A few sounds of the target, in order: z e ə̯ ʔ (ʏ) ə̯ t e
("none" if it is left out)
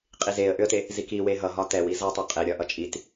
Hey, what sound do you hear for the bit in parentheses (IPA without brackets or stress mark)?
ʏ